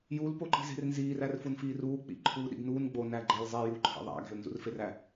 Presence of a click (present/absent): present